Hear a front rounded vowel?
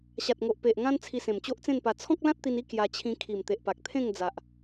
no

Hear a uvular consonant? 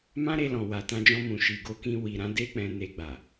no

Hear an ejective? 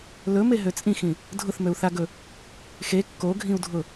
yes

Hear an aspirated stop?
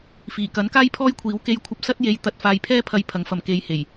yes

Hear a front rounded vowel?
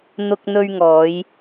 no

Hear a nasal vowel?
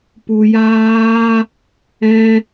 yes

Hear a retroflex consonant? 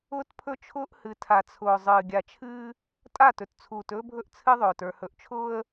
no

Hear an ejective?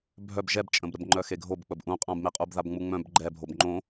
yes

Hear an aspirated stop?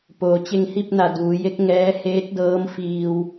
no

